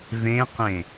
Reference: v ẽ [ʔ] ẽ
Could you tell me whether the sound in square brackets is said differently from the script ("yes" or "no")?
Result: yes